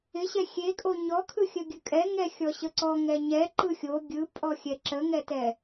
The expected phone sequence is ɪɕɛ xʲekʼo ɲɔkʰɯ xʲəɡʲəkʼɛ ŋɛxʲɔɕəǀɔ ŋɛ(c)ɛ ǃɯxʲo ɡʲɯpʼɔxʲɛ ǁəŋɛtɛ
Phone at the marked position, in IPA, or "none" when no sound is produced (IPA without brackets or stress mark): ɲ